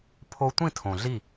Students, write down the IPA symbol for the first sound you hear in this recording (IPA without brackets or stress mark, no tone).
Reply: pʰ